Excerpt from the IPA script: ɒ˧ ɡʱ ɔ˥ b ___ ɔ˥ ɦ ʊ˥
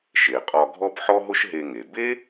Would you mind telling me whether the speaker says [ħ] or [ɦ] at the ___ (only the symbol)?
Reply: ħ